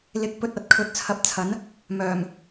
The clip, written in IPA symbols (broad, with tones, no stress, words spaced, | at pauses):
lɪ˨˥k̚pɵ˧t̚ɐ˨˥t̚ kʰɵ˧t̚t͡sʰɐ˧p̚t͡sʰɐ˨˥n | mœː˨˩m